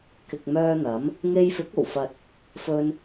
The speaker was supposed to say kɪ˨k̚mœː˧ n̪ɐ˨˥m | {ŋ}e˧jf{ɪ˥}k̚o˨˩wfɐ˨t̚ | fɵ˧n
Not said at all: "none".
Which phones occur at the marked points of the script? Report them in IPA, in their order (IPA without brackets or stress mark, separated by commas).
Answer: ŋ, ɪ˨˥